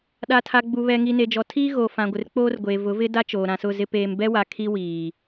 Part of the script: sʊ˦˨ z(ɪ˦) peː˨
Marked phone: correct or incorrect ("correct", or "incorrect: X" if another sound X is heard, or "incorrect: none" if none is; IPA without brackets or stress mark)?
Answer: correct